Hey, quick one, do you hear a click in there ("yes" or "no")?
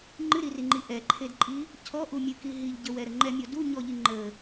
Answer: yes